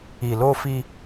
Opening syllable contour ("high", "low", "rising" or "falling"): low